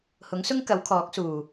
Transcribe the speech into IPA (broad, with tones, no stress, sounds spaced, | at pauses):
h ʊ˨˥ ŋ s ʊ˥ ŋ k ɐ˨˥ w kʰ ɔː˨˥ k̚ s uː˨˩